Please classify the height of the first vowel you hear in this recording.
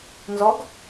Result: mid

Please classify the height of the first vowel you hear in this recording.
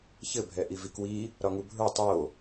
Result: mid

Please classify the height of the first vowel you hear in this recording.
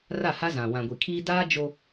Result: low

